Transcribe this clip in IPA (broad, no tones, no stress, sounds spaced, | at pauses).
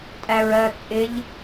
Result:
tʼ æ ɹ ɜ t͡sʼ ɪ ʎ